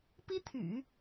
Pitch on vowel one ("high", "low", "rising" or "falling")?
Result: high